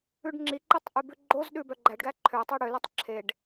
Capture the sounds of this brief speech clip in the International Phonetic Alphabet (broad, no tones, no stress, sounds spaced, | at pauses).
ʉ ɖ ŋ͡ǁ i ǃ e tˤ ʔ ʉ b ʉ ɡ͡ǃ o z ɗ ʉ b œ ɡ͡ǃ æ ɖ ɡ æ ǃʰ ø tˤ æ ɽ ø l o tˤ ǁʰ e ɖ